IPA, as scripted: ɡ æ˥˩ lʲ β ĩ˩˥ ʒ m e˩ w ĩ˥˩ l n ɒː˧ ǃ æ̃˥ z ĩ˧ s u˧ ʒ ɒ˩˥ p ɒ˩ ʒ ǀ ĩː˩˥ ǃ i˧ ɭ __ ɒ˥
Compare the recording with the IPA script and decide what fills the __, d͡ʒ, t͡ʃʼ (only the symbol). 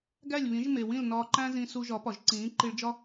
d͡ʒ